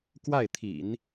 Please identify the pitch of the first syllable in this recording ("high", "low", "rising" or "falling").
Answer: falling